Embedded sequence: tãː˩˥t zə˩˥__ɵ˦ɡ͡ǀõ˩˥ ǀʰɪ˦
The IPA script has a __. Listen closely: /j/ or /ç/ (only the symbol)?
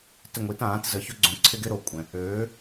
ç